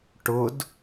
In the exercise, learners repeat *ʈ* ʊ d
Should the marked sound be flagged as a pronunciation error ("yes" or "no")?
no